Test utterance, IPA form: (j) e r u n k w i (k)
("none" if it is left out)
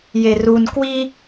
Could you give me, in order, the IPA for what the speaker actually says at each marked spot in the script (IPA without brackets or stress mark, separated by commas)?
j, none